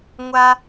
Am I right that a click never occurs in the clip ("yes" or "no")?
yes